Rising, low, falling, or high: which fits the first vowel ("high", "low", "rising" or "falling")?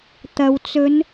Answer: low